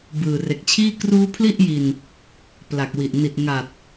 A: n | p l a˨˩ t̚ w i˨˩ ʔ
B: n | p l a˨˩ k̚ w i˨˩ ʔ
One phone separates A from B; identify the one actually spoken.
B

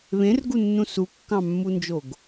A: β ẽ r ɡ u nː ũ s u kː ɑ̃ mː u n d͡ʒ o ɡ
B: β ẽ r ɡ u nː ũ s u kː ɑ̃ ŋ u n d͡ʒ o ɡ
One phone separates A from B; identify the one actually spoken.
A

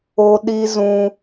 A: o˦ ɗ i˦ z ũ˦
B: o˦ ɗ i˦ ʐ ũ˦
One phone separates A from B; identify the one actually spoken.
A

